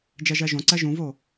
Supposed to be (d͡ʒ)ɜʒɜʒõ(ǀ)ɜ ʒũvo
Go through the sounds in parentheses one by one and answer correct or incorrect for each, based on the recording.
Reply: correct, correct

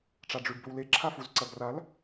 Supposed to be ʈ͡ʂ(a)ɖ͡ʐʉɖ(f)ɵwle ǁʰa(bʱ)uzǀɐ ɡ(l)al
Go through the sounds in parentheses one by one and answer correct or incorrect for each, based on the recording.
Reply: correct, incorrect, incorrect, incorrect

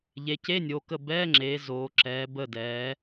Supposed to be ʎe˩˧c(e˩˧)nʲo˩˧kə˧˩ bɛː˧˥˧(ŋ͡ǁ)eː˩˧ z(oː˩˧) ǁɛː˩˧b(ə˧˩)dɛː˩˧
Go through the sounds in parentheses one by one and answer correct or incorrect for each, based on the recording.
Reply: incorrect, correct, correct, correct

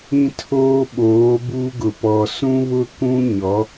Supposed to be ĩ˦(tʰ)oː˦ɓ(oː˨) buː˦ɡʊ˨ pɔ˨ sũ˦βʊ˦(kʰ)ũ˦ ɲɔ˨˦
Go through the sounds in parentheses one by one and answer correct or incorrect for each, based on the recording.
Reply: correct, incorrect, incorrect

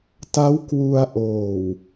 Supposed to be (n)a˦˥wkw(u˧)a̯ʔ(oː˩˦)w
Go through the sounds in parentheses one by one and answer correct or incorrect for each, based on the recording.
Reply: incorrect, correct, incorrect

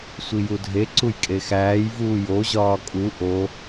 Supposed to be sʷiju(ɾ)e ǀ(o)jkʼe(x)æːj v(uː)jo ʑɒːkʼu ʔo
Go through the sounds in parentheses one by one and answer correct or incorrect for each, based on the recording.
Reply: incorrect, incorrect, correct, correct

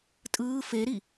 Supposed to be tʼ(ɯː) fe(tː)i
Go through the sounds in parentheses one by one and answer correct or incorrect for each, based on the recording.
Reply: correct, incorrect

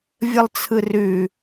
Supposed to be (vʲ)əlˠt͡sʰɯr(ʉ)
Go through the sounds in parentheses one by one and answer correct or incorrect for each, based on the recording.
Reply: correct, correct

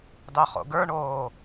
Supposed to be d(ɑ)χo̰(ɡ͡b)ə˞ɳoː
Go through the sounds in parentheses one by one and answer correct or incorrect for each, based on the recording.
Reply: correct, incorrect

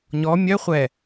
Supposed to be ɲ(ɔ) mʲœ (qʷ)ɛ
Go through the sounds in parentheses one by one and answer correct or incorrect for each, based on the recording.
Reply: correct, incorrect

